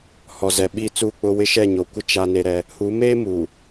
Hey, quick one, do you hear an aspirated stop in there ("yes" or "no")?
no